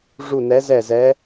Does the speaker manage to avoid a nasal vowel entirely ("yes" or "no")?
yes